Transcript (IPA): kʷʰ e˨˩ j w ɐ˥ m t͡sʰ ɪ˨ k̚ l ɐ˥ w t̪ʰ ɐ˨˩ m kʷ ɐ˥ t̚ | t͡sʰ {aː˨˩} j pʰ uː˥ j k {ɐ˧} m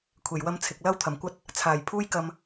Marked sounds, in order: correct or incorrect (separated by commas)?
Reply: correct, correct